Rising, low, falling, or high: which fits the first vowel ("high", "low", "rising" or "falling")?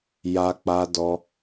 high